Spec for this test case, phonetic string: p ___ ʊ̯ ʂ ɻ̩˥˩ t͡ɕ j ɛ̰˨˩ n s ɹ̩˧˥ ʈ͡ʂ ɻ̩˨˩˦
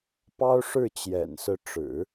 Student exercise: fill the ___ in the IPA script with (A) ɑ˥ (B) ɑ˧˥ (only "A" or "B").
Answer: A